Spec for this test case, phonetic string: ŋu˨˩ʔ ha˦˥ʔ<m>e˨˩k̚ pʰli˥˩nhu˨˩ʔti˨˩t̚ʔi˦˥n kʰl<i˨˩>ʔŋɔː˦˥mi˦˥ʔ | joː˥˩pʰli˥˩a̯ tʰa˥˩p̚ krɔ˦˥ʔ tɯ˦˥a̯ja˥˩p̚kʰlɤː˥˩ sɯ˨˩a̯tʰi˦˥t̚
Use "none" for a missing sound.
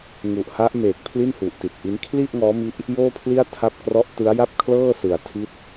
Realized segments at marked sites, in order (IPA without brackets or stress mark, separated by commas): m, i˥˩